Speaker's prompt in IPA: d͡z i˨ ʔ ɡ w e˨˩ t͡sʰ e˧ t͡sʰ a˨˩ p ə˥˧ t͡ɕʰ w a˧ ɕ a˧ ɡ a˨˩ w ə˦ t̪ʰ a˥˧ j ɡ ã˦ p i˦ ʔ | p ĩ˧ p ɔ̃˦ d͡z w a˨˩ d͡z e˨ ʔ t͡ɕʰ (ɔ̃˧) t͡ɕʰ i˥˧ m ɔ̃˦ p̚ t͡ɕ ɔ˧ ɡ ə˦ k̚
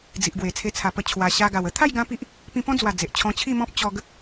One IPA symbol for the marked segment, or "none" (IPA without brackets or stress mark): ɔ̃˧